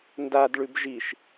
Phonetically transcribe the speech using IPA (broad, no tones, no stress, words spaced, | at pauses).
ndadɭʉb ʒiʃ